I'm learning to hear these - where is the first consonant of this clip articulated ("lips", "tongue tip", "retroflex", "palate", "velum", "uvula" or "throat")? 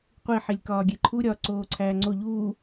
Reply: uvula